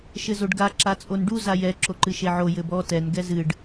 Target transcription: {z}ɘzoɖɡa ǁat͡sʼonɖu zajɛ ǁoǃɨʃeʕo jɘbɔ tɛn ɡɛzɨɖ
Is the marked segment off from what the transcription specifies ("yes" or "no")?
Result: yes